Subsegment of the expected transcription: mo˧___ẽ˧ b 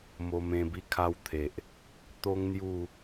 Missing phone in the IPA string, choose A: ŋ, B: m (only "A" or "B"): B